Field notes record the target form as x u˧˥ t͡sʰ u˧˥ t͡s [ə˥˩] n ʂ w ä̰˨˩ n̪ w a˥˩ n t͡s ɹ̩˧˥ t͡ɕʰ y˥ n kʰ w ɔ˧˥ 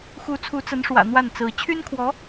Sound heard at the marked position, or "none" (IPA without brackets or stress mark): ə˧˥